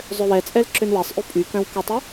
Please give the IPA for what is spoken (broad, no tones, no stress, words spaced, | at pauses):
zˤøwɛt͡sʼɛl ǁønwɛsˤʔy pʼykœ̃w kʊtˤy